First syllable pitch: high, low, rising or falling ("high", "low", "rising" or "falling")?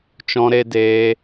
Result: high